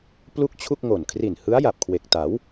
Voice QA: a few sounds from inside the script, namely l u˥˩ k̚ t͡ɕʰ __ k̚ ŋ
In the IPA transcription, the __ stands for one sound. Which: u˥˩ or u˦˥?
u˥˩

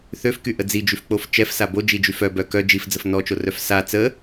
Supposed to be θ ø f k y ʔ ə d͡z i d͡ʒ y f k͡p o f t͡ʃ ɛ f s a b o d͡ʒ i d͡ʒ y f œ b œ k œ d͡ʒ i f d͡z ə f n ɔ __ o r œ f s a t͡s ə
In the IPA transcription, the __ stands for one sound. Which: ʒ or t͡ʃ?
t͡ʃ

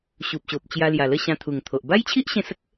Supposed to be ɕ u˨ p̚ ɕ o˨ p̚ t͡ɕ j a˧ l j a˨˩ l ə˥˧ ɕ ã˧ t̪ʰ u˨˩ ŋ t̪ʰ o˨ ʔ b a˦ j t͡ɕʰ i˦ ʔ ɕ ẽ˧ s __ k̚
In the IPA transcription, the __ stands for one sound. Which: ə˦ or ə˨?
ə˦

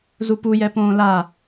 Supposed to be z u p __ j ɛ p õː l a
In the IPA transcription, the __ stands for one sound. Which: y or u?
u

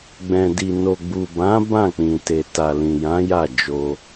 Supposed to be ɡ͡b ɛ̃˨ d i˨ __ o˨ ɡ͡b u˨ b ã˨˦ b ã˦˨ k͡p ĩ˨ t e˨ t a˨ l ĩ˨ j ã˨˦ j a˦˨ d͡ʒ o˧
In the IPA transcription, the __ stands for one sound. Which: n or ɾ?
n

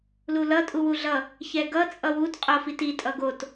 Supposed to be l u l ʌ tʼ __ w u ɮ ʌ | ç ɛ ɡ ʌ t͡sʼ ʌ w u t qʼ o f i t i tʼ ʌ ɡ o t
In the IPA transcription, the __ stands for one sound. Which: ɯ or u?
u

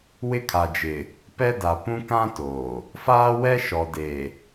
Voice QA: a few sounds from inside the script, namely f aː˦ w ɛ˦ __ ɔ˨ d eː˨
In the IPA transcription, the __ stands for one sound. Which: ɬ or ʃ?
ʃ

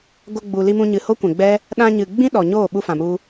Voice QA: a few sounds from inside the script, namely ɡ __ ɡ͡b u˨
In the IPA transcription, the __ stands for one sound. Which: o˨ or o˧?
o˧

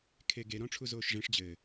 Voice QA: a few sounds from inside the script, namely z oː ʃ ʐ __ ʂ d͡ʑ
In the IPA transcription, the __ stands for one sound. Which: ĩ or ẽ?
ẽ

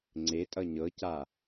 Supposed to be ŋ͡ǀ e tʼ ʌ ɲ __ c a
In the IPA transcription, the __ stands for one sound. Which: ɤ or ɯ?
ɤ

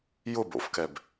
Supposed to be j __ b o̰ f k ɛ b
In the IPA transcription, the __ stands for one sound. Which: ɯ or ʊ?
ʊ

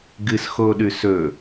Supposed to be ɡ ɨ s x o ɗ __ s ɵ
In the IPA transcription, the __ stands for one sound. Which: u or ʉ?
ʉ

